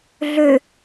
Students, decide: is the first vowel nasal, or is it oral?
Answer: oral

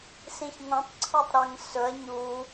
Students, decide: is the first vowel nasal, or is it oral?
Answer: nasal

